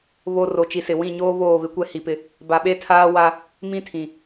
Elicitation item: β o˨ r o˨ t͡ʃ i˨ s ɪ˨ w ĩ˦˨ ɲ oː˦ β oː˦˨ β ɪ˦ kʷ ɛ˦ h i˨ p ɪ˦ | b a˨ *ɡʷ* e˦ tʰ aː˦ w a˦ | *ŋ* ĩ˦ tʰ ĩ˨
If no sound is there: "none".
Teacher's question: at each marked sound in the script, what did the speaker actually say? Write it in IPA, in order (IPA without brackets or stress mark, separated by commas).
ɓ, m